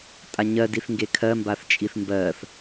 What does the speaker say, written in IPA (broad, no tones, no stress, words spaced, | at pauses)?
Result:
tʼaɲɜdiθ ŋɡekʰɜmbaθ t͡ʃʼiθmbɜθ